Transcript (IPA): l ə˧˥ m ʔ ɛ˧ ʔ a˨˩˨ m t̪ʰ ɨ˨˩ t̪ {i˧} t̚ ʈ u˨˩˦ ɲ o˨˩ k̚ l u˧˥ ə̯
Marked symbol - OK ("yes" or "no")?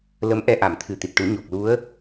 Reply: no